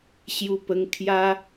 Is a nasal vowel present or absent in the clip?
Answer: absent